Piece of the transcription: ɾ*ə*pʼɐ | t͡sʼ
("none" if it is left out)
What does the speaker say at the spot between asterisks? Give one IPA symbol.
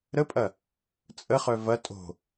ə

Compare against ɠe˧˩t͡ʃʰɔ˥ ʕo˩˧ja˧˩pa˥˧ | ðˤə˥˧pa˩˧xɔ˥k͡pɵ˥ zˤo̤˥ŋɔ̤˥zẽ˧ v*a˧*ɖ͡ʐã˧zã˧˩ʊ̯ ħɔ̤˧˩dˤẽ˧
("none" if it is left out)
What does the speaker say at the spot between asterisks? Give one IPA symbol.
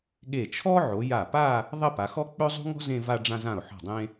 a˧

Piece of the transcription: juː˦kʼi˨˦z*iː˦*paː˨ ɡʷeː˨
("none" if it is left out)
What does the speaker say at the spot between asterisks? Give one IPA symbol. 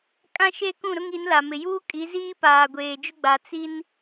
iː˦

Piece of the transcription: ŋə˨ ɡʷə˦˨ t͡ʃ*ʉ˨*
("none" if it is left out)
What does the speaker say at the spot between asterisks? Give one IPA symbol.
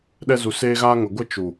u˨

